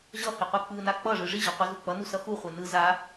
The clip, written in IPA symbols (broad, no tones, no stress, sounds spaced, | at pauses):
ʑ ʌ h i qʷ i k͡p ɯ n a k͡p ʌ ʐ ɯ ʐ i ʑ ʌ qʷ i z u k͡p ʌ n u s ʌ x u χʷ ɛ n ɯ z a